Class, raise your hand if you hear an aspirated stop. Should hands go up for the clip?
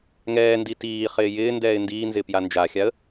no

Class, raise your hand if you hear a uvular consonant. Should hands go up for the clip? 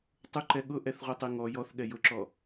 yes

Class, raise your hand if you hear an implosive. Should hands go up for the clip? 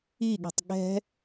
yes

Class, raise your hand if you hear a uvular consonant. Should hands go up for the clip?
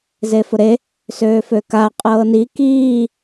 yes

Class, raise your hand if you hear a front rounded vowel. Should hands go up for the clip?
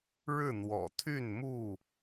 yes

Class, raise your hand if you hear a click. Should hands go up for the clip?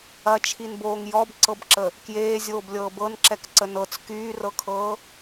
yes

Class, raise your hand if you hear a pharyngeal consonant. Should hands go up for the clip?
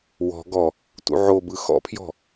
yes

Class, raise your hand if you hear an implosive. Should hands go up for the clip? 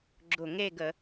no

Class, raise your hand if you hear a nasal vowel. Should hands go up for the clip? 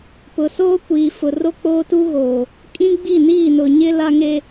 yes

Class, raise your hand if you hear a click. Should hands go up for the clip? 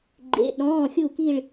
yes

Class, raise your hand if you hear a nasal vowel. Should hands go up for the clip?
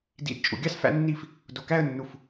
no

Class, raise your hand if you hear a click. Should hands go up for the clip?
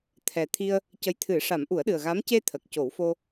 no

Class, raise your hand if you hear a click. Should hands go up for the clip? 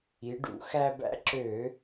yes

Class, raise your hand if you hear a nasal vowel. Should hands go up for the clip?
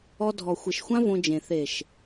yes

